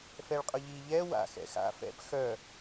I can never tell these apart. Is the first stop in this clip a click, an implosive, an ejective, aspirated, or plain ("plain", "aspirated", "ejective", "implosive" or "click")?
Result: ejective